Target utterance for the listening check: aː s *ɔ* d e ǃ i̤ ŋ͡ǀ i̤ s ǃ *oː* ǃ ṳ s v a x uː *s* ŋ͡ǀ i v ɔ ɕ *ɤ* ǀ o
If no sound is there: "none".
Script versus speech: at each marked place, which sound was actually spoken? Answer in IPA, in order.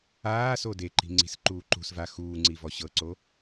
o, uː, none, ɤ

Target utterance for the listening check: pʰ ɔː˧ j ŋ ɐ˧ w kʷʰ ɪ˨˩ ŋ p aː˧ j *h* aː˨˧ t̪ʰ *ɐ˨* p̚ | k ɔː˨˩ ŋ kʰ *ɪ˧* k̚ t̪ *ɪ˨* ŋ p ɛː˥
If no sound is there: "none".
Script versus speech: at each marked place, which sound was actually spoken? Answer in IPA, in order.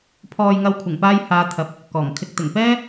h, ɐ˨, ɪ˧, ɪ˨˩

